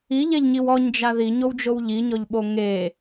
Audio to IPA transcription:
i ʎ ɛ ʎ ɲ i w ɔ ɲ d͡ʒ a ð i ɲ o w d͡ʒ o w ʎ i ɲ ɔ ʎ ɓ o ŋ e

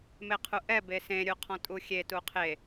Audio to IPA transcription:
m e qʰ u ʔ ɛ b e s ẽ ɾʲ u qʰ ɔ̃ tʼ u xʲ e t u qʰ e

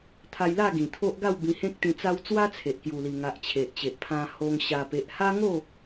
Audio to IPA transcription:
t̪ʰ a˧ j l a˥˧ ɡ ĩ˨˩ t̪ʰ o˦ ʔ ɡ a˥˧ w b ĩ˧ h ẽ˦ k̚ t̪ ĩ˧ t͡s a˦ w t͡s w a˦ t͡sʰ e˨ ʔ k j u˨˩ l i˨˩ ŋ a˨ ʔ t͡ɕʰ e˨ ʔ t͡ɕ e˨ ʔ pʰ ã˧ h o˧ ŋ ɕ a˨˩ p e˨ ʔ h a˦ ŋ o˥˧

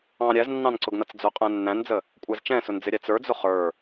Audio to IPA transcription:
ɑ̃ ɾʲ æ z nː ɑ̃ n ǀ ʊ ɡ n ʌ t͡s d͡z ʊ qʼ æ̃ nː æ̃ n d͡z ə | kʷʼ æ z t͡ʃ ɛ̃ s ʊ n d͡z ɪ ɾʲ æ t͡s ə˞ d͡z ʊ χ ə˞

